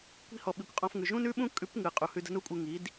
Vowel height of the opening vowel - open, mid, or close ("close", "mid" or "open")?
close